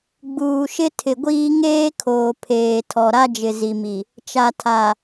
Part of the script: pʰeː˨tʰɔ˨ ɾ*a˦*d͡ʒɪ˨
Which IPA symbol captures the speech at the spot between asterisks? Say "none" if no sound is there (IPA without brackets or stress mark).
a˦